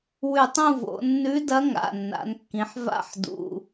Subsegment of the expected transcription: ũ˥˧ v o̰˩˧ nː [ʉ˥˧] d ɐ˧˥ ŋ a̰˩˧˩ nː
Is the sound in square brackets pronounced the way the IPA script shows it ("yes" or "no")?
no